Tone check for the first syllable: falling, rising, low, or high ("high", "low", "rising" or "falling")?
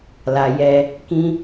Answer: low